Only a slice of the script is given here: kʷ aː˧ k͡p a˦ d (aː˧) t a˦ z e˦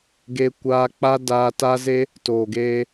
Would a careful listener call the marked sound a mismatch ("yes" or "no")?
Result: no